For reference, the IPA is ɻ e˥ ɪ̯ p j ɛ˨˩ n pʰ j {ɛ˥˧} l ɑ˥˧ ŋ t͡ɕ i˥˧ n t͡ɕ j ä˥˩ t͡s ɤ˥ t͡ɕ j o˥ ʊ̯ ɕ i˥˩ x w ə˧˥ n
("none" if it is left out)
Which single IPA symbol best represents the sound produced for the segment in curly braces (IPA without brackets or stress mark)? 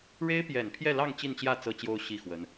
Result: ɛ˥˧